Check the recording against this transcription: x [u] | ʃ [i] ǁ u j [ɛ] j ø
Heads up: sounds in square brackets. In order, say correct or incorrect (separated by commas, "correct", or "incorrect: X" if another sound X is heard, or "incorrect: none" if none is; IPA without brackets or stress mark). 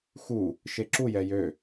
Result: correct, incorrect: e, correct